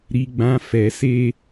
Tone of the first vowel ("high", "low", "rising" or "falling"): high